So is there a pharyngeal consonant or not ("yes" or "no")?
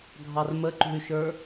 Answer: no